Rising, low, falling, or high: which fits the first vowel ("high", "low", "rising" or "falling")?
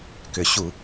low